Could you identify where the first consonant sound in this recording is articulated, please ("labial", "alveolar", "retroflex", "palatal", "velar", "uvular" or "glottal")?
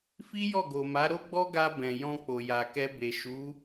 labial